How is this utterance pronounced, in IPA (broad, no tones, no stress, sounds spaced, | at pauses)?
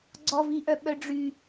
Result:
ɡ͡ǀ ɔ v i ʔ œ ɓ œ ɖ͡ʐ y